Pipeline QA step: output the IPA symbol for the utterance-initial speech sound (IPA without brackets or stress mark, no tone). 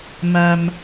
m